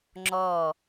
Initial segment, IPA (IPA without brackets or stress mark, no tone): ŋ͡ǁ